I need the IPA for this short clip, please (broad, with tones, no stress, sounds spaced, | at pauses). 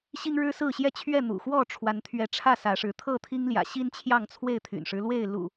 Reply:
ɕ i˦ ŋ ɻ ɻ̩˦ s ɹ̩˥˨ ɕ j ɛ˥˨ t͡ɕʰ ɥ ɛ˥˨ n̪ ṵ˨˩ x w ɔ˥˨ ʈ͡ʂʰ w a˨˦ n t̪ʰ ɥ ɛ˨˦ ʈ͡ʂʰ ä˥˨ s ä˨˦ ʂ ɻ̩˨˦ t̪ʰ ɤ˥˨ t̪ʰ i˦ ŋ l j ä̰˨˩ ɕ i˦ n t͡ɕʰ j ɑ˥˨ ŋ t͡sʰ w e˥˨ ɪ̯ t̪ʰ y̰˨˩ n ʂ ɻ̩˦ l w e˥˨ ɪ̯ l ṵ˨˩